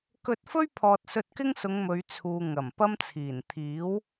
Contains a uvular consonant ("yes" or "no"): no